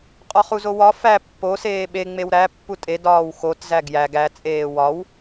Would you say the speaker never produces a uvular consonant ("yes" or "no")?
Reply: no